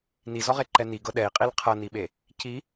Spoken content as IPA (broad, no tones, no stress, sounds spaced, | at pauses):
n i z ɔ ʁ e ǃ ɛ n i ɡ ɤ ɗ ɛ i̯ qʼ i l qʰ ɤ n i ɓ e | c i